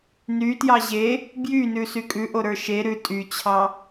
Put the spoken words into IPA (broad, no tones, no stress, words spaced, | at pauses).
nytjɑ ʑe | bjynʉsy kʼʉʔoɾə˞ ʃe ɾʉ tʼyt͡ɕʰɑ